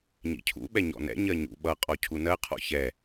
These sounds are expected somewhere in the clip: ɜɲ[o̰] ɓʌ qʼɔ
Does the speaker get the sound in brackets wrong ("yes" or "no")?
yes